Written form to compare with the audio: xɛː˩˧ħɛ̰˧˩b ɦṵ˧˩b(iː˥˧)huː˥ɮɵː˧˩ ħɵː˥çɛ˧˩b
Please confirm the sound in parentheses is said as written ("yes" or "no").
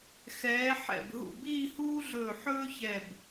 yes